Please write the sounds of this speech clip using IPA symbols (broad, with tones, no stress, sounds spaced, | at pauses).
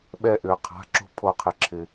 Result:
ɓ ɛ˧ ʔ ʏː˩ qʰ a̤˩˧˩ ǁ o̤˧ pʰ o˨˩˦ qʰ ɪ˩ ǁʰ ɪ˩